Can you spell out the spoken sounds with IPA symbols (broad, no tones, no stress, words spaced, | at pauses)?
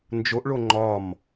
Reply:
nd͡ʒoʔɭo ŋ͡ǃɒm